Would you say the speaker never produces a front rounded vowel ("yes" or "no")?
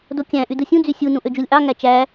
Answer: no